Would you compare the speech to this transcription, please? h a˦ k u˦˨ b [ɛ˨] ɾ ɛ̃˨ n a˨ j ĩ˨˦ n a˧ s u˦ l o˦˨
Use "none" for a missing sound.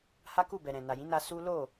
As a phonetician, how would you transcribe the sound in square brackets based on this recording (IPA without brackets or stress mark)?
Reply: ɛ˨